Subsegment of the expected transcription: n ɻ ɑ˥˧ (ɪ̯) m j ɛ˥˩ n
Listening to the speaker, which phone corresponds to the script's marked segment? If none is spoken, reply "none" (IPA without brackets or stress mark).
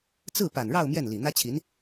ʊ̯